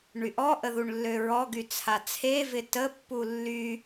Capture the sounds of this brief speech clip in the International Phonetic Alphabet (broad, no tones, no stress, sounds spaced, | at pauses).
ɳ y ʔ ɔ ʔ ə ð u ɳ lː ø ɹ ɔ ɡ y t͡sʰ a t͡sʰ e v ɪ t ə pː u lː y